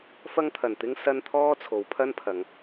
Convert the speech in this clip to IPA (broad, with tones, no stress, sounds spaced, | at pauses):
f ɐ˥ ŋ t̪ʰ ɐ˨˩ n t̪ ɪ˥ ŋ s ɐ˥ n t̪ʰ ɔː˥ t͡sʰ o˨˧ w pʰ ɐ˥ n pʰ ɐ˨˧ ŋ